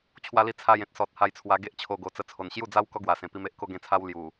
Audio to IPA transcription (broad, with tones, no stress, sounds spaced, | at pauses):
t͡ɕʰ w a˧ l i˧ t͡sʰ a˥˧ j ẽ˦ t̚ s ɔ˨ t̚ h a˧ j t͡sʰ w a˧ ɡ e˦ ʔ t͡ɕʰ o˧ ɡ o˨˩ t͡s ə˧ t͡sʰ o˨˩ n ɕ j u˥˧ d͡z a˦ w k ɔ˦ ɡ w a˨˩ s ẽ˨˩ p i˧ m e˦ ʔ k o˥˧ ɡ ẽ˥˧ t͡sʰ a˦ w l j u˨˩